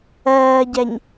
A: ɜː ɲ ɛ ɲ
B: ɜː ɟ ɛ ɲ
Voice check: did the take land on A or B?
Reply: B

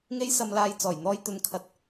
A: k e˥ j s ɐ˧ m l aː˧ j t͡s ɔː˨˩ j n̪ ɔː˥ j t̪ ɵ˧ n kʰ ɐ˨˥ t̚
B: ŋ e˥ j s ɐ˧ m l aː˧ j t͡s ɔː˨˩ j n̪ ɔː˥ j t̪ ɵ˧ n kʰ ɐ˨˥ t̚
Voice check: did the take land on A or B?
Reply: B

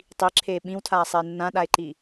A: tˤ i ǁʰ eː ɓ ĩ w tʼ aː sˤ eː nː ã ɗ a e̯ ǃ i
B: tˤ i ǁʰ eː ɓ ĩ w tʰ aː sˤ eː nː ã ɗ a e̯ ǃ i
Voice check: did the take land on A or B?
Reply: B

